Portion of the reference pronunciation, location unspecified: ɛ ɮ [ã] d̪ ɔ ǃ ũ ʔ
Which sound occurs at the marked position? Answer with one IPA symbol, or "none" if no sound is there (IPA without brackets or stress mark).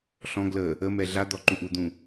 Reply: a